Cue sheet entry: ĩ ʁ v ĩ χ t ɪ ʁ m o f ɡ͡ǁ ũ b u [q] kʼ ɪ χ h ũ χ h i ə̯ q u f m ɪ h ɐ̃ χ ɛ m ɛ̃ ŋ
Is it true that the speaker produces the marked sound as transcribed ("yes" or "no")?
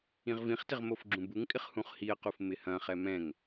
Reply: no